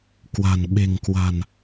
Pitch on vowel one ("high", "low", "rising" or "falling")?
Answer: low